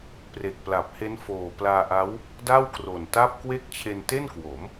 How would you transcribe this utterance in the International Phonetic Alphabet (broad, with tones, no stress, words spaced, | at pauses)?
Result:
pre˨˩k̚pla˨˩p̚he˦˥n foː˨˩ plaː˧ʔa˦˥w | da˥˩wkro˨˩nta˥˩p̚ kwe˦˥k̚t͡ɕʰe˧nte˥˩nkwo˩˦m